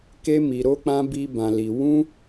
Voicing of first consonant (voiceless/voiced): voiceless